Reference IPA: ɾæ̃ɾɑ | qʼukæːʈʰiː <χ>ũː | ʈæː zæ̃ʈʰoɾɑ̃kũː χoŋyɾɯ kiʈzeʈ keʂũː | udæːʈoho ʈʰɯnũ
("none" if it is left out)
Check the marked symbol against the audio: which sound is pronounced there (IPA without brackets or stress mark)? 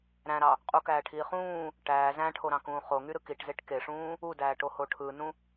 χ